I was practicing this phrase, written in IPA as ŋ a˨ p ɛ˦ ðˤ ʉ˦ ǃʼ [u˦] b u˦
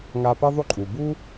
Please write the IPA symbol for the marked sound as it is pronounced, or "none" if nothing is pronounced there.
u˩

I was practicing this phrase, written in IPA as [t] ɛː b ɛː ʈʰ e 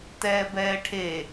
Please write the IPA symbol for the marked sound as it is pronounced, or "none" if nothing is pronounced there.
t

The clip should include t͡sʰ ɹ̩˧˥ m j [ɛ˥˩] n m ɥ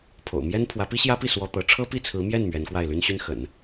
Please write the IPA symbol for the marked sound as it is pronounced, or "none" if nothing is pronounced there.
ɛ˥˩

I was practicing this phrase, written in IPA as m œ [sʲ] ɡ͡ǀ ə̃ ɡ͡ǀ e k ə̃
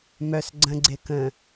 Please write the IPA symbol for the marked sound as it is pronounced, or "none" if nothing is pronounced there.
s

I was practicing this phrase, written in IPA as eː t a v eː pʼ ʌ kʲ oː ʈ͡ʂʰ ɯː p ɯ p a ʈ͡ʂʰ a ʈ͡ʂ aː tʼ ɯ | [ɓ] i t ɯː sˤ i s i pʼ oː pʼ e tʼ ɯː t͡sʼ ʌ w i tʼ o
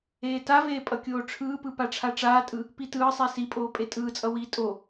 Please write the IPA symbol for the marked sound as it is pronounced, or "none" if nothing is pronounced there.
p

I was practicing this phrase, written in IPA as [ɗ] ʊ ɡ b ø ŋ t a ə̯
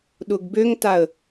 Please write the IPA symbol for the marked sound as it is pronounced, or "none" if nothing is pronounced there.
ɗ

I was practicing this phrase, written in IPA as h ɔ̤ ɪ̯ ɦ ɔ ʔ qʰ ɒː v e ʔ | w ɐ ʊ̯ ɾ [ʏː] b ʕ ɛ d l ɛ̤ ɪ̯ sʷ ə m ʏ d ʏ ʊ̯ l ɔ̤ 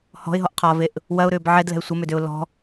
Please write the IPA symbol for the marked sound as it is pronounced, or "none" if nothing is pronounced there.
ʏː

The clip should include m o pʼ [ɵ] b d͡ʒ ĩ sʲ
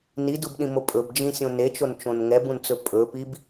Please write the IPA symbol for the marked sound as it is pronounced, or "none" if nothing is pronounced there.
ɵ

